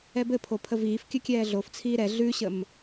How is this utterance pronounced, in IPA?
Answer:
ɛbɘ pʰopʰəviːf kʲɘkʲɛːɮoft͡sʰiː ɾɛ ɮʉɕəm

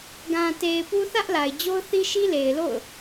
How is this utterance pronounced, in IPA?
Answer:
ɡã˨te˨ɪ̯ pu˦ θä˦ʔla˨ɪ̯ d͡ʑo˦ʊ̯θi˦ʃi˦ le˨ɪ̯lo̰˦˨ʊ̯

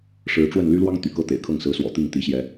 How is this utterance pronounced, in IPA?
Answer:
ʂɻ̩˨˦ʈ͡ʂwə˥˨n ly˦lwɑ˦ŋ t̪y̰˨˩kɤ˥˨t̪ḛ˨˩ɪ̯kʰɤ˥˨ŋ sɹ̩˨˦swɔ̰˨˩t̪i˥˨ŋ t̪i˨˦ɕjɛ˨˦

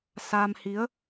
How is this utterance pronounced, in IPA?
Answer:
sa˧mhi˨˦ə̯

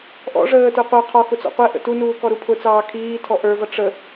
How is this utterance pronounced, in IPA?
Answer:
ʔɔ̰ ʐəː tə˞qʷə˞ qʰɔ xʊt͡sɔ̰qʷɛ ʔə̰tunuː kɔɾupʰʊt͡sɑː kʰiːtʰɔ ʔə˞vʌ ʈ͡ʂə

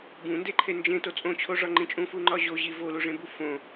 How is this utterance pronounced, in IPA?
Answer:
bũndeǃʰe nd͡ʒẽto t͡sʼõt͡ɕʰoʐɒŋ͡ǃĩ t͡ʃʼũfuŋ͡ǃɒ ʑoʑi voluʐẽbu fõ

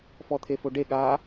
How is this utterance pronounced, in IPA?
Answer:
fɔt̪ʰefoɖe ɠa

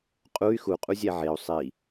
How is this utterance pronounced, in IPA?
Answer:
qʼuy̯ xuqʼuzʲæ ʕeu̯ sˤi

